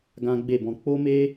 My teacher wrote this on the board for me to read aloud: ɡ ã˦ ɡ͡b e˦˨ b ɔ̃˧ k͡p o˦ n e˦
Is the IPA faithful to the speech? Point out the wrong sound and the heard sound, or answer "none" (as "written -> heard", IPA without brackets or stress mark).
n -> m